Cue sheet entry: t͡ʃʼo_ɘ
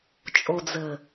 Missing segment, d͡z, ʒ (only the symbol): d͡z